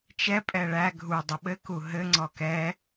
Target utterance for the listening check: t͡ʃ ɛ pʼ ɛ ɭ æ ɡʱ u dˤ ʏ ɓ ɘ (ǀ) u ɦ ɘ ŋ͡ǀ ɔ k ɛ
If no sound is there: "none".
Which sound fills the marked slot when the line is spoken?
k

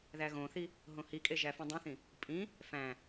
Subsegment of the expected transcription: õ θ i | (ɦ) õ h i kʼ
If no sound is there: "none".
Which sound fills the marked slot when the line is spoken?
ɦ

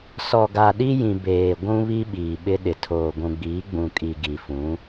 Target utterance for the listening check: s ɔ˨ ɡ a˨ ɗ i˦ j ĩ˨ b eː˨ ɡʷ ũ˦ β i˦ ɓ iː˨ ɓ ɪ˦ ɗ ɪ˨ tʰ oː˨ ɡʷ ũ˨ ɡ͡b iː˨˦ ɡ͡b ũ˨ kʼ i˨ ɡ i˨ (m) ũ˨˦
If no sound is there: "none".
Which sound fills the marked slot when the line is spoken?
f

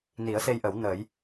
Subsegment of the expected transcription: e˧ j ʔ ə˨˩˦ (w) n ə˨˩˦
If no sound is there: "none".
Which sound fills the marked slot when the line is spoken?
w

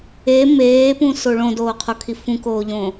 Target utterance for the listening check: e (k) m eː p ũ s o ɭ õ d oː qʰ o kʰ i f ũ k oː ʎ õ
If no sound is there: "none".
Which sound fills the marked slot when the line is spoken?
none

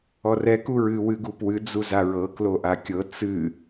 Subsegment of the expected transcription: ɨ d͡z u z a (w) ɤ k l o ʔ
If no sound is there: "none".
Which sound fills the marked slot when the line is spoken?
ɹ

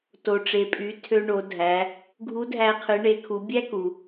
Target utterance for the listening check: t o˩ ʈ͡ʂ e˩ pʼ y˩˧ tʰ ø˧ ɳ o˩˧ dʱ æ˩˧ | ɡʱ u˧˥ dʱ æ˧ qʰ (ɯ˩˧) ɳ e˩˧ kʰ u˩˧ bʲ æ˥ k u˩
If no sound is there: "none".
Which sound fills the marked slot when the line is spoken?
ɯ˩˧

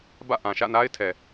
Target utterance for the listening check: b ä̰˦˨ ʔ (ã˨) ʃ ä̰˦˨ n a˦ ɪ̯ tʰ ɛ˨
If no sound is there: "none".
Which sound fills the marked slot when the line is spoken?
ã˨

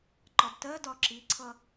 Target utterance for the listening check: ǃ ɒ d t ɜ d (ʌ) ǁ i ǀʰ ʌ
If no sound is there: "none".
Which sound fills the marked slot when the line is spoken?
ɒ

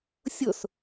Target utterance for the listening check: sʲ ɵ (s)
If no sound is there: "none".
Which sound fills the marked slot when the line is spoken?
s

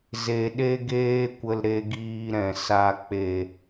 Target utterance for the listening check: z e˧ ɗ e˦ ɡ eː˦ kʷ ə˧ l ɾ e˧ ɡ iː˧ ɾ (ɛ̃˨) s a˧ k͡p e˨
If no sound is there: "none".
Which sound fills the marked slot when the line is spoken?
ɛ̃˨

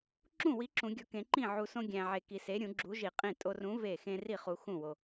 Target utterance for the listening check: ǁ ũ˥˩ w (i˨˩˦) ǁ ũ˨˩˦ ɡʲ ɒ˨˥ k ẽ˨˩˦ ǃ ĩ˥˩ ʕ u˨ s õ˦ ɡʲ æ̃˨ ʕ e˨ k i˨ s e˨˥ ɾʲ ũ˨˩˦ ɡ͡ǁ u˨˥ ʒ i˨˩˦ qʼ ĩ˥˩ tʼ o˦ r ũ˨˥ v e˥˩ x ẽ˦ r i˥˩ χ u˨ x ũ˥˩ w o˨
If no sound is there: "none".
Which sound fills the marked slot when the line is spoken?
i˨˥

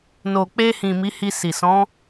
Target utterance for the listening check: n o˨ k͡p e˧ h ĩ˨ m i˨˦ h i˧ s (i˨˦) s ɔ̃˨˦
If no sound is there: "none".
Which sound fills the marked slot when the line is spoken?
i˨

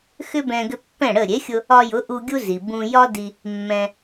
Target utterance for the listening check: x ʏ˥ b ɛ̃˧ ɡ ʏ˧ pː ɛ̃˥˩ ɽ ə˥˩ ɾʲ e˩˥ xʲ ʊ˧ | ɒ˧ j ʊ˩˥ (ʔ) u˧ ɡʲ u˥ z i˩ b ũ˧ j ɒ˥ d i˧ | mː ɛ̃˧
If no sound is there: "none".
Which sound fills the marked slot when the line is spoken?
ʔ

